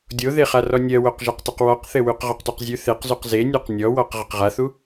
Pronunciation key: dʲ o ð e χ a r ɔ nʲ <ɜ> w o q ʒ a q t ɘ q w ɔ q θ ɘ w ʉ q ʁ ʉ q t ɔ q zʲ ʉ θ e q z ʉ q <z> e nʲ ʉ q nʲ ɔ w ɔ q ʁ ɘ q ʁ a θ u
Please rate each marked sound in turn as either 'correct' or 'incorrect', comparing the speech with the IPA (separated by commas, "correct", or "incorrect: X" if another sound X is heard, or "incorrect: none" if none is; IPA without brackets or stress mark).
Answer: correct, correct